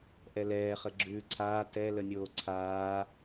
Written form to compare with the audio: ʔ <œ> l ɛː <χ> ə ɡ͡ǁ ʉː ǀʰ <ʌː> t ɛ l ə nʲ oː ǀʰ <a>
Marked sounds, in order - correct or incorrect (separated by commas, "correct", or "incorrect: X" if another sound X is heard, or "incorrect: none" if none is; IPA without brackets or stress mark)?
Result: incorrect: ɛ, correct, incorrect: aː, incorrect: aː